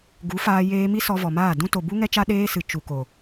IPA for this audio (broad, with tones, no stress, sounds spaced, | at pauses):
ɡ u˨˦ f aː˧ j eː˧ m i˦ s ɔ˧ v ɔ˨ m aː˦˨ d ũ˦ t o˨ b u˦ ŋ ɛ˦ t͡ʃ a˦ ɗ eː˦ s ɨ˨ t͡ʃ u˨ k o˨